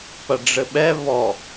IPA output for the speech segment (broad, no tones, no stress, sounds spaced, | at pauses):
p ɐ ɖ͡ʐ ɘ ɓ ɛ β ɔ